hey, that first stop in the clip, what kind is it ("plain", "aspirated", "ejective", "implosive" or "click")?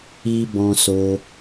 plain